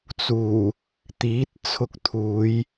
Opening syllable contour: low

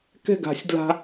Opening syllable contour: falling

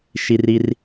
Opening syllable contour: high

